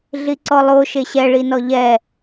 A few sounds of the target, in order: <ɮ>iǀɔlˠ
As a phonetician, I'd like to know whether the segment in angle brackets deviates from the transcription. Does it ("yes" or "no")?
no